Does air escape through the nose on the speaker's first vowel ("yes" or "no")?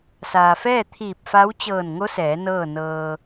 no